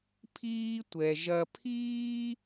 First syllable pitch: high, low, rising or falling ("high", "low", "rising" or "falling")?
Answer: high